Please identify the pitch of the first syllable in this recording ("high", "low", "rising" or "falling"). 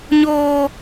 high